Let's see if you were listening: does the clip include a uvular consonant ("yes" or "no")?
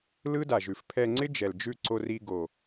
no